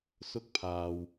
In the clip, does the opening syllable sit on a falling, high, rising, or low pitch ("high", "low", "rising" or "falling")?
high